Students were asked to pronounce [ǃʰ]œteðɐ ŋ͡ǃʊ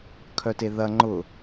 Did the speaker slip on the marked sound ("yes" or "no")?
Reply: yes